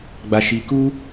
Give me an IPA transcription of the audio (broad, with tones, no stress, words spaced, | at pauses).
ɡ͡ba˧ʃi˧ku˦